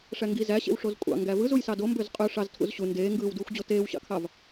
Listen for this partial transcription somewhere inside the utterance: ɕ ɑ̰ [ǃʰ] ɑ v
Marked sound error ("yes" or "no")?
yes